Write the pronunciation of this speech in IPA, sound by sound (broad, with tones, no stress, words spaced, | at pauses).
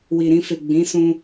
wi˨ɾĩ˧fe˨ ɡ͡bĩ˨˦ sũ˧